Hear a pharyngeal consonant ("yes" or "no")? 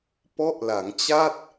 no